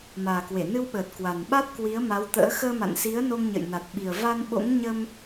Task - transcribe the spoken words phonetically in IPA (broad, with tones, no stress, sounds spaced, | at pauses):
m aː˨˩ k w e˧˩ n ɨ˧ w ɓ əː˨˩ t̚ k w a˨˩ n ɓ a˦˥ t̚ k w i˨˦ ə̯ m a˨˦ w t̪ ə̰ː˧˥ x əː˧ m a̰˧˨ n s i˨˦ ə̯ n o˧ ŋ ɲ ə̰˧˨ j n a˨˩ t̚ ɓ i˨˩ ə̯ v a˧ n ɓ o̰˧˥ ŋ ɲ ə˧ m